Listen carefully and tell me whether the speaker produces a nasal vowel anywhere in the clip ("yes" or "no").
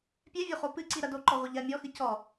no